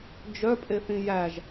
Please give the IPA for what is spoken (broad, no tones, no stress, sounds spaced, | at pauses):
d͡ʒ œ pʼ e θ ĩ j æ ʒ